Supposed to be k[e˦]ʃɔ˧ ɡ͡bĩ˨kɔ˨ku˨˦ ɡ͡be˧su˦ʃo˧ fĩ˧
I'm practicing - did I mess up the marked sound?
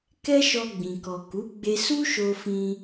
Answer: yes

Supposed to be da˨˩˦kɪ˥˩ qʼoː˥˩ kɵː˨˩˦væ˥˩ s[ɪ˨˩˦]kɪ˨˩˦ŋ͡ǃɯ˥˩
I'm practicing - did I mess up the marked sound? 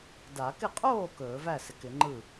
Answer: no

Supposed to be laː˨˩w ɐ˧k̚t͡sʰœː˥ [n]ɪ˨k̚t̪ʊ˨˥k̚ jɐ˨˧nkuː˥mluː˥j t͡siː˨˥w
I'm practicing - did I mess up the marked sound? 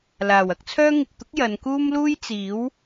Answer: yes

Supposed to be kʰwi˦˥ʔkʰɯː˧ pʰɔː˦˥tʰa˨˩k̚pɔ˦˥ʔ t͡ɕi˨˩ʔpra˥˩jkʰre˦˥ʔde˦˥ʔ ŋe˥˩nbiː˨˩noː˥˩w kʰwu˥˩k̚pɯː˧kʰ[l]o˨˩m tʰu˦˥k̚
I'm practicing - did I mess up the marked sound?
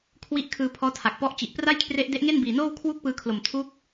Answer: no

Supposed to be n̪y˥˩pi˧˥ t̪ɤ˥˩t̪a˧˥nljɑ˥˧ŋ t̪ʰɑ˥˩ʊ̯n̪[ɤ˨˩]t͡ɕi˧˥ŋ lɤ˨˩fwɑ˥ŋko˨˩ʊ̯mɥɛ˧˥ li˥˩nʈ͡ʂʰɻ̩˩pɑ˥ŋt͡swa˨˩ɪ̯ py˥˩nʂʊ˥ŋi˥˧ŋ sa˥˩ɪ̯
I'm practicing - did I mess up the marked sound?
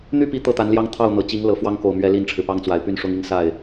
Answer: no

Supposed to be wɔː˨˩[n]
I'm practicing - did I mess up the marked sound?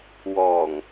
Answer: yes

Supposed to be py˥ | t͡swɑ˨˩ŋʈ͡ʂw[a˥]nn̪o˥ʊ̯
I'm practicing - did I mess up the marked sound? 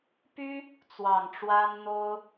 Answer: no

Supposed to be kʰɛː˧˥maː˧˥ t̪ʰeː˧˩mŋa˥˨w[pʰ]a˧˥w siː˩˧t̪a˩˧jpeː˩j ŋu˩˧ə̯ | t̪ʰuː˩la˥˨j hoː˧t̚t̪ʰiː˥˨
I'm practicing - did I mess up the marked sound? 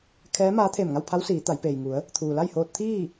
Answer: no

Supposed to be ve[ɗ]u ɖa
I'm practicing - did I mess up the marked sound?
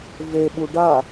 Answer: yes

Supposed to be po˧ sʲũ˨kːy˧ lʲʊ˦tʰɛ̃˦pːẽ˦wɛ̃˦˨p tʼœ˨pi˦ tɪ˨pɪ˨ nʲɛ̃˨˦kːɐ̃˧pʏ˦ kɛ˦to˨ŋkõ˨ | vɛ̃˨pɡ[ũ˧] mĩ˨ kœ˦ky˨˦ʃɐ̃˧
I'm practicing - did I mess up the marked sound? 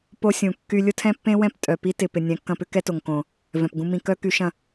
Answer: no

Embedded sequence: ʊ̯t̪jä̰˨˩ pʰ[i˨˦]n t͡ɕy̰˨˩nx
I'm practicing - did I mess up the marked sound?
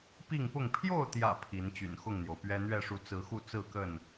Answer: no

